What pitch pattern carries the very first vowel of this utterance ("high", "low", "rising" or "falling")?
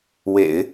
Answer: low